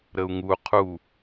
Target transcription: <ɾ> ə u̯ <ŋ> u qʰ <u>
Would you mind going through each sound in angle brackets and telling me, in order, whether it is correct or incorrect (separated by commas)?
correct, correct, correct